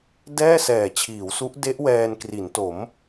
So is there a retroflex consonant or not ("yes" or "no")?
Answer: no